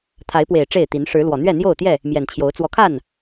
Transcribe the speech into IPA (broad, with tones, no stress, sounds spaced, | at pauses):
t̪ʰ a˨˦ ɪ̯ p w e˨˩ ɪ̯ ʈ͡ʂ e˥˨ ɪ̯ t̪ i˨˦ n ʂ ɻ̩˨˦ l w ɔ˨˩ n̪ ɥ ɛ˥˨ n̪ j o˥˨ ʊ̯ t̪ j ɛ˥˨ | m j ɛ˨˩ n t͡ɕʰ j o˨˦ ʊ̯ t͡s w ɔ˨˦ kʰ a˥˨ n